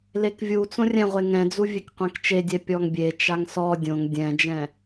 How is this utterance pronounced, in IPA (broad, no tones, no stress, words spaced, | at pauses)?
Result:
lekvʲut͡sõ rʲɛ̃ʁʷeŋ ɛ̃d͡zuvʲek qʷɛ̃kt͡ʃedʲɛ pʲɔŋbʲe t͡ʃaŋsɔ dʲõŋ dʲɛ̃d͡ʒɛ̃